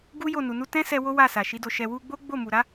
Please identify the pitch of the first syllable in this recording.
high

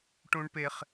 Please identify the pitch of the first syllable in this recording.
high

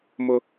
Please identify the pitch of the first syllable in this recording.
high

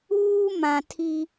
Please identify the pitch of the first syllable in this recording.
high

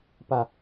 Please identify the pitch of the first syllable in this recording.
falling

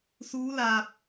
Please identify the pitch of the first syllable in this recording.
rising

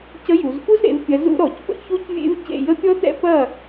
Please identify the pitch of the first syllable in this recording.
rising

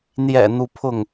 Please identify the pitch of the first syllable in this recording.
low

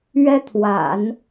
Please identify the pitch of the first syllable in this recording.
high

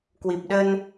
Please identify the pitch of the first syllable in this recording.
low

